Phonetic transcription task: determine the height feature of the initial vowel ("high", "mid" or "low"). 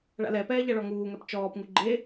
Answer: low